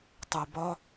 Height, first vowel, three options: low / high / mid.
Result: high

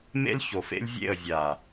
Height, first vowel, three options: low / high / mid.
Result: mid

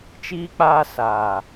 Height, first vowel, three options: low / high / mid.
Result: high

